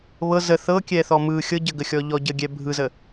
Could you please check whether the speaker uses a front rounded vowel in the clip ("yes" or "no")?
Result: no